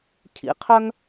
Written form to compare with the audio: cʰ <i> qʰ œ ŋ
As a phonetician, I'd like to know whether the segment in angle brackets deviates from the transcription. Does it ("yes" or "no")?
yes